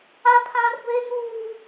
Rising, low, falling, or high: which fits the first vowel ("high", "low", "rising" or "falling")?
high